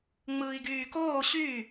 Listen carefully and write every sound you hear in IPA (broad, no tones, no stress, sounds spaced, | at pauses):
ŋ͡m ɯː i̯ ɡ yː k oː ɕ y